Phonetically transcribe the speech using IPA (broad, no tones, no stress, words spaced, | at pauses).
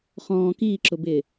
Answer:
χɔ̃ː kiːǁʊbɪː